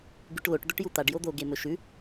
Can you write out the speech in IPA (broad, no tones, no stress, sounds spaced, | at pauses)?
ɡ ʉ ʈ l o ʈ d̪ ɵ ʈ j u t̪ a ɖ j o d̪ o ɡ e m ɵ ʃ ʉ